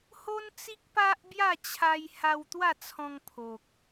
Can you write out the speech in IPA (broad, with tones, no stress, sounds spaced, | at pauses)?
h o˦ n t͡s i˦ k̚ p a˦ ʔ b j a˥˧ t͡ɕʰ a˧ j h a˧ w t̪ w a˥˧ t͡sʰ ɔ̃˧ ŋ pʰ o˨ k̚